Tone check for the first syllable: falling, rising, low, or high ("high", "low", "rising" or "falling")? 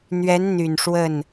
rising